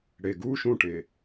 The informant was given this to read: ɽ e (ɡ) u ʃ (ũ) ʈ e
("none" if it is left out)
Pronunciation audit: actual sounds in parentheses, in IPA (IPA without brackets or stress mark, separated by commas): ɡ, ũ